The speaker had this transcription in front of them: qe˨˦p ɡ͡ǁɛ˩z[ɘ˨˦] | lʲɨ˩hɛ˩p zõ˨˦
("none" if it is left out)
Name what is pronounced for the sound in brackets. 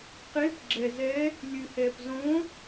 ɛ˨˦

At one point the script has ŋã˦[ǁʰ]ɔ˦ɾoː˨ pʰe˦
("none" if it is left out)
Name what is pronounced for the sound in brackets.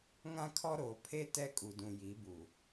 kʰ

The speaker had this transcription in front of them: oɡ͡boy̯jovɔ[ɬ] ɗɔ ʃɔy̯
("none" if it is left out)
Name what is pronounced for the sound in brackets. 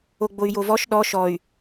ʃ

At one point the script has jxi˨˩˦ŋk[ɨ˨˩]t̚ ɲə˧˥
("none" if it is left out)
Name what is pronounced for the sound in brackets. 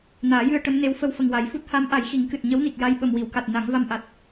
ɨ˨˩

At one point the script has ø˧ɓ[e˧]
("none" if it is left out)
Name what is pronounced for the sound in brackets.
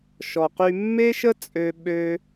ø˧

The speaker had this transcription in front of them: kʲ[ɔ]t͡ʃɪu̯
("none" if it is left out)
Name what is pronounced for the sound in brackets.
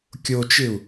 o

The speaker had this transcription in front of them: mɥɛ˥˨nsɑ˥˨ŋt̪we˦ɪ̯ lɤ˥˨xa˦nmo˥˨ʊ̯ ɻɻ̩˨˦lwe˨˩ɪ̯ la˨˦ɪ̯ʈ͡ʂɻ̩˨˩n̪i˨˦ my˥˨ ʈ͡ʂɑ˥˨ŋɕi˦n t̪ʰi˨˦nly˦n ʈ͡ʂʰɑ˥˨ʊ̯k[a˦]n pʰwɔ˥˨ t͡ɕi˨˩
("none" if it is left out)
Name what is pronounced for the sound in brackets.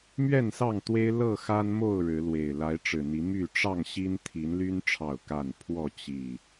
a˥˨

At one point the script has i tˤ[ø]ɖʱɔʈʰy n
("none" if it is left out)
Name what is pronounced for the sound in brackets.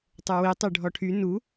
ø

